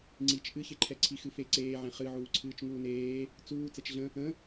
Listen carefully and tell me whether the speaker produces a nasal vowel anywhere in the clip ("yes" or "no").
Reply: yes